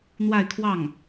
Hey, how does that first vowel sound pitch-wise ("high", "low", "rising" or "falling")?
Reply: falling